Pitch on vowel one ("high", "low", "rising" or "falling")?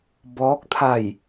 rising